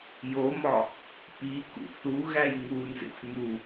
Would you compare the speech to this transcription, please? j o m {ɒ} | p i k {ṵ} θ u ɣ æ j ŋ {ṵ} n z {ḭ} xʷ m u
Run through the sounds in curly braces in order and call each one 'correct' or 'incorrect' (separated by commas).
correct, correct, incorrect, incorrect